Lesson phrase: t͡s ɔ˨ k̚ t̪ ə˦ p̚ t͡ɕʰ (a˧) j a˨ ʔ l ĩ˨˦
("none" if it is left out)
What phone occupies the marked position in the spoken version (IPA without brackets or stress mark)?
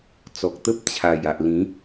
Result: a˨˩